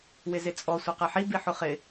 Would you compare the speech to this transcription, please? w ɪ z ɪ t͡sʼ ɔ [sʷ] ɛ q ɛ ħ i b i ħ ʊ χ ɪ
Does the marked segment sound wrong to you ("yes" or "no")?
no